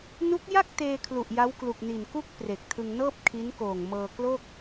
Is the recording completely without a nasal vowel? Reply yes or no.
yes